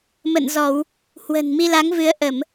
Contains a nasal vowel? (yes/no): no